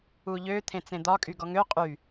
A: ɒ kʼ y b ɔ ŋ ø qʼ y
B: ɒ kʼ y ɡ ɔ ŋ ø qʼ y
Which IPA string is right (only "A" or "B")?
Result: B